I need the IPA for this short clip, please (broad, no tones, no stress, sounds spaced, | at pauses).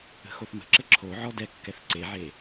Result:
ə̤ x o θ m ə̤ ǁ ə ǁʰ o ʕ ɔ d ɛ kː ɛ θ ǀ e ʕ e